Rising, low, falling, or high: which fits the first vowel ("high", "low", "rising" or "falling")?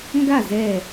falling